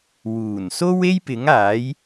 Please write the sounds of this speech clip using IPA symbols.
wuː˨˩n so˥we˥jpɪ˨˥ŋ aː˨˥j

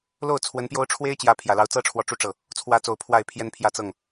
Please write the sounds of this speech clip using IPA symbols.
lo˥˩ʊ̯ t͡sʰwə˧˥npjo˥ʊ̯ ʈ͡ʂʰwe˥ɪ̯t͡ɕjä˧˥ pʰjä˨˩lɑ˧˥ʊ̯t͡sɤ˥ʈ͡ʂʰwɔ˧˥ ʈ͡ʂu˥ʈ͡ʂɤ˥˩ | t͡sʰwä˧˥t͡so˨˩ʊ̯ pʰwa˥˩ɪ̯pʰjɛ˥npʰjä˥˧ t͡sɤ˥˩ŋ

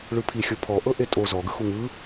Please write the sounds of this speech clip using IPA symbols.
ɭɯpʰixʲo pʰɔ ʔɤʔetʼo zɔɡɯxu ŋɯ

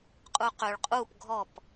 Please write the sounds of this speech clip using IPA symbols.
qʼuqøɭ qʼuːp ɡʱɔp

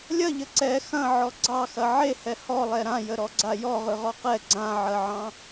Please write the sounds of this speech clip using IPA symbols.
lʲɐʎə ǀɛ xɐ̃ʕɔ ɡ͡ǀɑxɐ ʕehɛ hɔlˠɛ ɾãjəɾɔɡ͡ǀa jɔʁɯʁɔ qɛ ɡ͡ǀãʕɐʕɑ̃

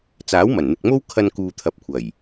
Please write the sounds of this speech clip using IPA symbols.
t͡saː˨˥wmɐ˨˩nn̪ɪ˨k̚mo˥w kʰɐ˧nkuː˨t̪ʰɐ˨p̚kʷʰɐ˨˩j

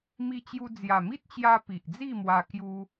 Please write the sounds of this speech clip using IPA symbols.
mi˧t͡ɕju˧ d͡zja˨˩mi˦t̚t͡ɕja˧ pi˨ʔd͡zi˥˧mwa˧ kju˧

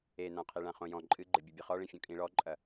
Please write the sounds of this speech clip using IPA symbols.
enãqʰi ɭãχõjɔ̃ ǃʼɨɡ͡ǃɘbʲubʲɐ χɔɭẽ fʲõkʼĩɭɔǃʼɐ

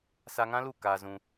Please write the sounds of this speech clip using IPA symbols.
sa˧ŋã˦lu˦˨ kaː˧zũ˧

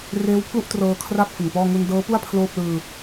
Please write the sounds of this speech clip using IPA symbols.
reː˦˥wpʰlu˥˩ʔtrɤː˧ kʰra˥˩p̚ fɯ˨˩ŋpɔː˥˩ ŋu˧ndɤː˦˥pu˥˩a̯ pʰloː˥˩p̚lɯː˧

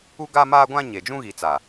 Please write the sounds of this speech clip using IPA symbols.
u˦ɡaː˦ maː˦ɡʷã˦ ɲe˨d͡ʒũ˦ɣi˨ t͡sa˨

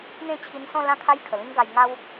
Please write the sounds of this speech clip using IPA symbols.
n̪ẽ˥˧t͡ɕʰi˧nsɔ̃˥˧ lã˥˧kʰa˦j kʰə˨˩lĩ˦ŋɡa˧j ŋa˦w

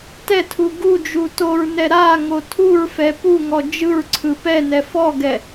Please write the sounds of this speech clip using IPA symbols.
tɛtʰu ɡu d͡ʒutoɹnɛ ɾa ŋotʰuɹfɛ puŋɔ d͡ʒɯɹǀʰɯ pɛ nɛfɔɡɛ

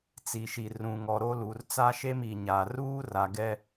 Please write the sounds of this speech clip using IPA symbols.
t͡si˨ʃi˨ rũ˨ŋɔ˨ ɾo˦lu˨r t͡sa˦ʃe˦m i˨ɲa˨ ruː˦ ra˨ ɡɛ˦

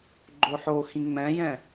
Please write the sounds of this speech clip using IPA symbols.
ɡ͡ǃoħoxĩ ŋ͡mɛ̃jɛ̃

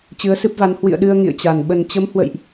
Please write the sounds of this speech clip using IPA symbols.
t͡ɕɨ˨˦ə̯sɨ˦˥p̚va˨˦n hwḭ˧˨ə̯ɗɨ˧ə̯ ŋḭ˧˨ə̯t͡ɕa˨˩n ɓə˨˩nt͡ɕə˨˦m hwə̰˧˨jʔ

